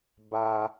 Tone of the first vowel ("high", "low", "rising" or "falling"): high